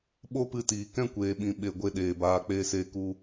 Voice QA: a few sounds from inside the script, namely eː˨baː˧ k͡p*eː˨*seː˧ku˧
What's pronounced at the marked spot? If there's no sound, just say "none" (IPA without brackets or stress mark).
eː˧